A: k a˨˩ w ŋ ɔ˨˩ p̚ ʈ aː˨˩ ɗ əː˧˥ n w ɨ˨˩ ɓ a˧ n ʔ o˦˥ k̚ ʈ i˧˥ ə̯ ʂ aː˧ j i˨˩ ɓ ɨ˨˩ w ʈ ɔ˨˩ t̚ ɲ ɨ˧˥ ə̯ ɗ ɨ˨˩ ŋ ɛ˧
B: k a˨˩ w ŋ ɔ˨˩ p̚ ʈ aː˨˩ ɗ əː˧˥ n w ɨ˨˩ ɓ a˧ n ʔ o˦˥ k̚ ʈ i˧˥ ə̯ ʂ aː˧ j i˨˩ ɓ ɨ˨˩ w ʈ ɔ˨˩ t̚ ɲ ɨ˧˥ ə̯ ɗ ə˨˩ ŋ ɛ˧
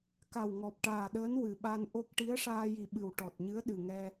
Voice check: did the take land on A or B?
A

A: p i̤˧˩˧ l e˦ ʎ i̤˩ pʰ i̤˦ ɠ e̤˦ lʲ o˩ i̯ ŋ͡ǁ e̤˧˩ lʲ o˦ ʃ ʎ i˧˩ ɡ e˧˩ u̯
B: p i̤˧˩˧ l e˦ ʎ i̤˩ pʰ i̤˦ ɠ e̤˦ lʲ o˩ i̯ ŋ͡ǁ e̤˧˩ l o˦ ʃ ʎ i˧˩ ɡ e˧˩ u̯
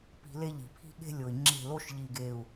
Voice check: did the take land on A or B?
B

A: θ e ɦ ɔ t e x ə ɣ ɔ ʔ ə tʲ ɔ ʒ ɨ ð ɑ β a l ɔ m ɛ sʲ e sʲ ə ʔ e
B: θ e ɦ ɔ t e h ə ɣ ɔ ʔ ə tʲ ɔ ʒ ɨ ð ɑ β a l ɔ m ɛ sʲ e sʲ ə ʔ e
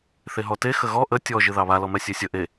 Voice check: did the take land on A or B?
A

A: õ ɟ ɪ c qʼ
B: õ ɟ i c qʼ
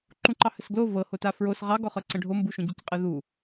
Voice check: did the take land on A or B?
B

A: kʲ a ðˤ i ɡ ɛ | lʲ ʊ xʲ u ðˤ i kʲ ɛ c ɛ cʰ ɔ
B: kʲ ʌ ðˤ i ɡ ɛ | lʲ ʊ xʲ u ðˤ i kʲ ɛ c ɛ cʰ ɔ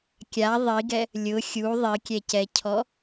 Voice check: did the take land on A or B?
A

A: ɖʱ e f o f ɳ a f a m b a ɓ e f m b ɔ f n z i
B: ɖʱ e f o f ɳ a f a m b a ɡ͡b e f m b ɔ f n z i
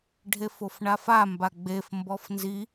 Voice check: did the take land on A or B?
B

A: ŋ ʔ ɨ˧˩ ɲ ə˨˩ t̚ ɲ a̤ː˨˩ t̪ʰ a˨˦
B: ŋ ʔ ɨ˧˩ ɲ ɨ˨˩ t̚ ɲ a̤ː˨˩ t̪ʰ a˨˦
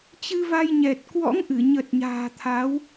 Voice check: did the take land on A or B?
A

